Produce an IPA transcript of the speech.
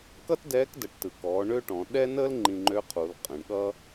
kʌ˥tdɛː˧˥kdə˩˧ʈtɯ˩ kɔː˩˧ ɳø˥ʈɔ̃˩˧ ɗɛ˥nəː˥l ŋ͡ǃĩ˧ŋ͡ǃø˧˥qʰu˩˧l qʼə̃˩˧ɳɠʌ˥

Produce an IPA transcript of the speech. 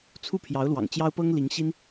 t͡sʰu˥˩ pʰjɑ˧˥ʊ̯lwɑ̰˨˩ŋt͡ɕjɑ˥ʊ̯ pɤ˥ŋli˧˥ŋɕi˥n

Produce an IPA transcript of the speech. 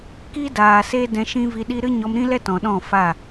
ki˦daː˨se˦ dɛ̃˧ʃĩ˦vi˧ɗi˦ ɾɨ˦ɲɔ˧mɾĩ˦lɛ˦ tɔ̃˨ɗɔ̃˦˨fa˦˨

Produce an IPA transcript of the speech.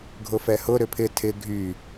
ɡʱʊfɛhʊ ɾʏpʰɪ tʰɪ ɡʱy

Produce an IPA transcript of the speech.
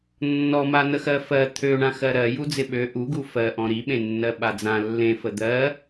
nːɔman̪əxɜ fɜ t̪ʰøɳã xɜɾɜ jud͡zɪɓø ʔuɡu fɜʔɔ̃ ɾiɓẽ nːɜɓad͡zã lːẽfə d̪ɜ

